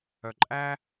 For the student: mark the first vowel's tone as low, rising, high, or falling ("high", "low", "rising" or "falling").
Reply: low